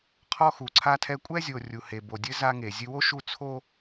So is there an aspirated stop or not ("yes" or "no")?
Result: yes